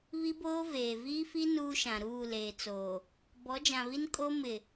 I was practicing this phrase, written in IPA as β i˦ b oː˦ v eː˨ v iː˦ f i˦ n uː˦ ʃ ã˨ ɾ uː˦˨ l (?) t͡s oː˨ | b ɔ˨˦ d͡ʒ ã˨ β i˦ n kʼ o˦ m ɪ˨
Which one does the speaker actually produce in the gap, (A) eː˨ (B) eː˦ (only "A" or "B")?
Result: A